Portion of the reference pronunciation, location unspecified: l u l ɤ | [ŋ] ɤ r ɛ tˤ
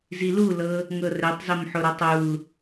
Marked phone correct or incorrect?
correct